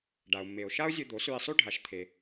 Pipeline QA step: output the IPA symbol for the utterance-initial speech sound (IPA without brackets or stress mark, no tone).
ɖ